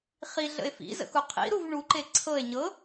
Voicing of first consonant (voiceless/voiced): voiceless